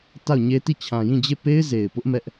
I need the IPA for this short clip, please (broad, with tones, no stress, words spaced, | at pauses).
ta˦˨ʊ̯ɲe˦ti˦˨ t͡ɕʰã˨jĩ˦˨d͡ʑe˦˨ pe˦ɪ̯ze˨ɪ̯pʊ˦ʔ mɛ˦ʔ